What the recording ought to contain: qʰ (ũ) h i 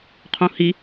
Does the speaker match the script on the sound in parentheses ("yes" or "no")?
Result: yes